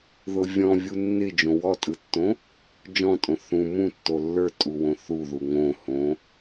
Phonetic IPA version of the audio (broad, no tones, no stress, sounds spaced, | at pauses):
ð ʊ vʲ ɔ̃ vʲ u nː ɪ d͡ʒ õ w ɔ tʼ ɯ tː õ | d͡ʒ ɔ̃ tʼ õ θ ũ m ũ tː o lː ə˞ tʼ u w õ θ u ð u ŋ õ h õ